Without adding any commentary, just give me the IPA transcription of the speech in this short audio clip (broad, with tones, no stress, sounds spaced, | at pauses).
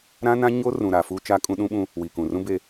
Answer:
ɾ ã˦ n ã˦ ɲ o˦ r ũ˨ ɾ a˨ f uː˦ t͡ʃ a˦ kʼ ũ˦ ɗ ũ˦ ɓ ũ˦ | w iː˨ k ũ˨ r ũ˦ b e˦